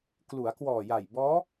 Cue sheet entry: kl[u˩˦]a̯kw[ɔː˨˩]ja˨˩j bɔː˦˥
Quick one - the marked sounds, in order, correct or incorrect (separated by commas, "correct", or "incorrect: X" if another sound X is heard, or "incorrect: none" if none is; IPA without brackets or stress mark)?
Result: correct, correct